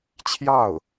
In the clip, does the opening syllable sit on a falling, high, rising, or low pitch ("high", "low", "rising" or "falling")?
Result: falling